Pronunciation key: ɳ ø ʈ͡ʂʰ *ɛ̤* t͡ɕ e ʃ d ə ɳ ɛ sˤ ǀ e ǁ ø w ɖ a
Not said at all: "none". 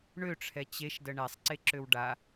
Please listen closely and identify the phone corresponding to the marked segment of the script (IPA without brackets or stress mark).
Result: ɛ